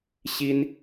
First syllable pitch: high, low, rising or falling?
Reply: high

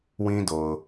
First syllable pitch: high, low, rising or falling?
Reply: high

